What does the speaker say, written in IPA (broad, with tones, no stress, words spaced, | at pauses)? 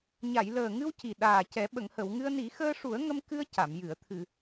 ɲa˨˩˨jləː˨˩ŋɨ˧w ci˨˩ɗaː˨˩cɛ˨˩˦ ɓə˨˩˨ŋhə˨˩˨wŋɨ˧ə̯ ni˨˩˦xəː˧ʂu˨˩˦ə̯ ŋə˧mkɨ˧ə̯ ca˨˩˨mjɨ˨˩˨ə̯ t̪ʰɨ˨˩˨